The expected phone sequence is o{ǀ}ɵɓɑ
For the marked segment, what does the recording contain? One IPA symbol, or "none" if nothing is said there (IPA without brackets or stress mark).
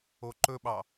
ǃ